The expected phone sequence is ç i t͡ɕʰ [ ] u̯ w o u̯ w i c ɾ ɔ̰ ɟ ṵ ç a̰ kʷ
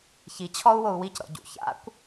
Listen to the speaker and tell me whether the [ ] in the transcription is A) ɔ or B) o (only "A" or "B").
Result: A